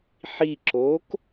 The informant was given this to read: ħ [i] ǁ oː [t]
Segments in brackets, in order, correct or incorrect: correct, incorrect: k

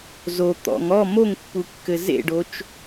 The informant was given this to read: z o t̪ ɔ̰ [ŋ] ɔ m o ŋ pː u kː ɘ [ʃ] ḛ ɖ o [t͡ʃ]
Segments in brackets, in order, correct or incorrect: correct, incorrect: z, correct

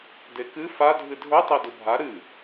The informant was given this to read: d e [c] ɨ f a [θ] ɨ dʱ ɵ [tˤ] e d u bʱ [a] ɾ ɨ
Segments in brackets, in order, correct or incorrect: incorrect: k, incorrect: dʱ, correct, correct

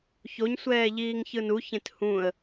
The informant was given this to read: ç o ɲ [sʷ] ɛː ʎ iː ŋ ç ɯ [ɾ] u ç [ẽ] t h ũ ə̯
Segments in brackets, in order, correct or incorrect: correct, incorrect: n, correct

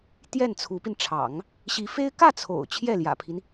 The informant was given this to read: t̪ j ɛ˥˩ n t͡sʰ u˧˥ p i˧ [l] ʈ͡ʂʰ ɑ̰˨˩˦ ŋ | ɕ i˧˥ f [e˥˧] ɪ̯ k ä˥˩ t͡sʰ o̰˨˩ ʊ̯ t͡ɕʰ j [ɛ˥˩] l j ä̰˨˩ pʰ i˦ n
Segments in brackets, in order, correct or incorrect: incorrect: n, incorrect: e˥, correct

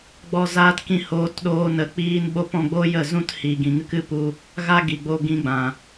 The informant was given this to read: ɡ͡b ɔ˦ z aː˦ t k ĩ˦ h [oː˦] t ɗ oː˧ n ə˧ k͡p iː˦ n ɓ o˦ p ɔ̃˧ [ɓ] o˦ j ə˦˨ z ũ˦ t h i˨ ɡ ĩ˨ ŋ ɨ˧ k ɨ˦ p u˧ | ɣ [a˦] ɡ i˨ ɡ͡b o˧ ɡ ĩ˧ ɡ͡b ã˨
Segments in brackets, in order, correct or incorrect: incorrect: oː˧, incorrect: ɡ͡b, correct

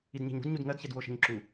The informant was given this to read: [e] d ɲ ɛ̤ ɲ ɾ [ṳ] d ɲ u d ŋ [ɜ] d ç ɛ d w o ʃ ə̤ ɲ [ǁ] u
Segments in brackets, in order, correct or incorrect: incorrect: i, correct, correct, correct

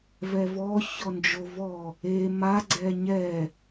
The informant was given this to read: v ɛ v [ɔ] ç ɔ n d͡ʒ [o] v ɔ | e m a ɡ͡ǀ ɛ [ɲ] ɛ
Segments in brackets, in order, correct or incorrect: correct, correct, correct

